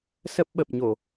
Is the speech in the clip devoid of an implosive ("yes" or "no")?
no